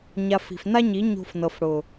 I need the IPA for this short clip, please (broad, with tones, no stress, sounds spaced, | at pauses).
ɲ a˨ f i̤˨ f n a˦ ɲ i˨˦ ɲ o̤˧ f n ɤ˨ f ɽ ʊ˨